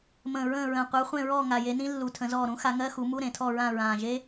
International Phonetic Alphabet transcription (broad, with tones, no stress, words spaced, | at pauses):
mə̃ː˨˩ ɹə̃ː˦˨ɹə̃ː˨˩ qʷə˞˨˦χʷẽ˦˨ɹɔː˦˨ ŋa˨˩je˨˦nĩ˦˥ lːu˨˦tʰə̃˨˦zɔː˦˨ ɾũ˦˥xa˨˦ ŋɜ˧˥˧xu˨˦mu˧˥˧ ɾẽ˨˩tʰɔ˦˨ɹã˦˨ ɹãː˨˩ʒe˦˥